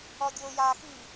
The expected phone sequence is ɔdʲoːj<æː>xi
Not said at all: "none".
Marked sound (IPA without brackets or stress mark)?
aː